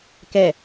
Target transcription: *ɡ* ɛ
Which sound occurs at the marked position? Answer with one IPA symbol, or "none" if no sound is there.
k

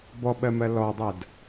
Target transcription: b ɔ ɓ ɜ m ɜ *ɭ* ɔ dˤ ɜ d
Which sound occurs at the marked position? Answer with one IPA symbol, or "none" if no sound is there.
l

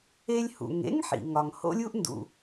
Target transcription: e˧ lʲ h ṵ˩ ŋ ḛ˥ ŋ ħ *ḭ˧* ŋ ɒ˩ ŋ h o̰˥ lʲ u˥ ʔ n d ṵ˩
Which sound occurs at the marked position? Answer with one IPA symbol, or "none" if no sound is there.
ḭ˩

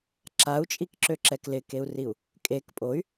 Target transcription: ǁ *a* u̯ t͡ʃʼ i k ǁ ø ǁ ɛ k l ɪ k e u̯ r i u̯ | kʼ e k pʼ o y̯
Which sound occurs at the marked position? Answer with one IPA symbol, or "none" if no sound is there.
a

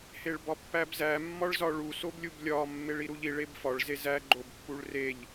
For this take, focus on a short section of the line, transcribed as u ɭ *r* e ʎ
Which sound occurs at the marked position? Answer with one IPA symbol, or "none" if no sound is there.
r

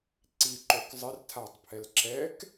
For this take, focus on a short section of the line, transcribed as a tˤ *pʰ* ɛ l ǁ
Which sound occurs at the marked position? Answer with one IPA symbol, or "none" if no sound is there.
pʰ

